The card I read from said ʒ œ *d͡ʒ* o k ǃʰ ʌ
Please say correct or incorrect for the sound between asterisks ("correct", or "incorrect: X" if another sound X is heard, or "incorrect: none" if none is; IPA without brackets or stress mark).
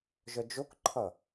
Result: correct